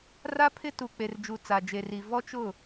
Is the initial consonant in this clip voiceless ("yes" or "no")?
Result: no